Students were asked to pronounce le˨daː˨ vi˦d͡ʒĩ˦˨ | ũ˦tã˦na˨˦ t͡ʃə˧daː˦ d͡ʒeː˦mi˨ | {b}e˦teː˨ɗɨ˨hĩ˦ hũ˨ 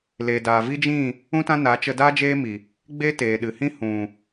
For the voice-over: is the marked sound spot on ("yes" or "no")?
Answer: no